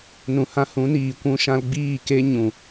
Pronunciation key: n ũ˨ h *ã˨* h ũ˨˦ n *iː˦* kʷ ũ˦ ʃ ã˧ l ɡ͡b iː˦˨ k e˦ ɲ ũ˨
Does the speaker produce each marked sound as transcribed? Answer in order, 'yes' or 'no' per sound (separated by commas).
no, no